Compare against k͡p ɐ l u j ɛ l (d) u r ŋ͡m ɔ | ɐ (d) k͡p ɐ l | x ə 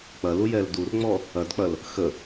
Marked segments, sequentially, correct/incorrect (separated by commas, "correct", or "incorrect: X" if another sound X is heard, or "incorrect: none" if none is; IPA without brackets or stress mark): correct, correct